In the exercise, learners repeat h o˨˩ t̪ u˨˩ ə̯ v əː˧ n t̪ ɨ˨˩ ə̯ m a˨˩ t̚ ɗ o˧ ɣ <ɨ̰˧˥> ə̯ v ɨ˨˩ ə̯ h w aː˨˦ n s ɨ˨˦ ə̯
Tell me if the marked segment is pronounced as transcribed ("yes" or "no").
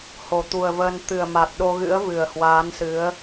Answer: yes